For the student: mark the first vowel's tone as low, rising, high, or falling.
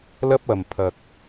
high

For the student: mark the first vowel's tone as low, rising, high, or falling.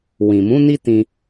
low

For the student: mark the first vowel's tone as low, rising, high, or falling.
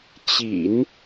low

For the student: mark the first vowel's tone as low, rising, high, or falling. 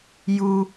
high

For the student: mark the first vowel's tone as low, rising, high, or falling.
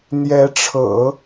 rising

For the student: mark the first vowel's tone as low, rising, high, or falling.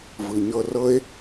low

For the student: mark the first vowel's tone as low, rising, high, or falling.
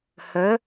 rising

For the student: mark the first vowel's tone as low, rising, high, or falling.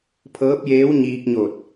rising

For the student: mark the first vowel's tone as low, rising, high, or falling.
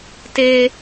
high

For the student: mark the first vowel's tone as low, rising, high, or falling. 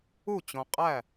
falling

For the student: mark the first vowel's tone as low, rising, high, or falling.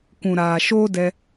low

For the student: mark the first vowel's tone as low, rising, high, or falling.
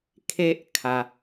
high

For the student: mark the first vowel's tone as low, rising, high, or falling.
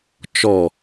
falling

